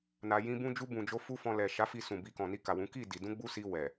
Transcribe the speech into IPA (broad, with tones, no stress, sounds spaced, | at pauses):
n a˧ j ĩ˧ b ũ˦ d͡ʒ u˦ b ũ˧ d͡ʒ o˦ f u˦ f ɔ̃˧ l ɛ˨ ʃ a˨˦ f i˦˨ s ũ˨ b i˧ k ɔ̃˨ n i˧ k a˨ w ũ˨˦ k i˦˨ d i˧ d ũ˦ ɡ͡b u˦ s i˧ w ɛ˨